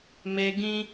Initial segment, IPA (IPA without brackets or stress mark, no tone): m